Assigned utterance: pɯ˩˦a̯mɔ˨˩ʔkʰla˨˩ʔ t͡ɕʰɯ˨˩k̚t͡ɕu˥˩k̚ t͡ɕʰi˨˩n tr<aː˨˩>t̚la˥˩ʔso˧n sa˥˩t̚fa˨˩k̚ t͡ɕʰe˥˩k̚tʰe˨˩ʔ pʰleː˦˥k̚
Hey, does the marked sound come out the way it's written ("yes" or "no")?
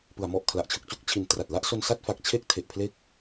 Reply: no